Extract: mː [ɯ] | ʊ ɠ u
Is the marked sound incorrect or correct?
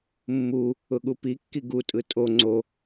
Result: incorrect